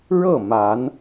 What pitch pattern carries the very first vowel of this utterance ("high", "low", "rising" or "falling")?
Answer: falling